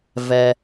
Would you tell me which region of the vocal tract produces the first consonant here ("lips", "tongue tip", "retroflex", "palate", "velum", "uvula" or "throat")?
lips